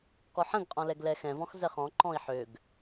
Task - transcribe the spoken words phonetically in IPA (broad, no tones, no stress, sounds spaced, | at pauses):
k ɔ ħ ə̃ ɡ qʼ ɔ̃ l ɛ ɡ l ɛ x ɛ̃ v ɔ̃ x z ɛ χ ɔ̃ ǃ ɔ̃ i̯ ħ ø ɡ